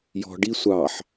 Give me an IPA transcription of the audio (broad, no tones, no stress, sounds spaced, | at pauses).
j ɔ̤ ɖ i sʷ ɑ ħ